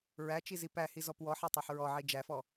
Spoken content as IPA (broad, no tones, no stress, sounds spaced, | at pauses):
ɹ æ t͡ʃ i z i p æ h i z ɔ p w ɔ ħ æ tˤ æ ħ ɹ ɔ ʕ i d͡ʒ æ f ɔ